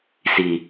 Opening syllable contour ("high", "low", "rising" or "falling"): low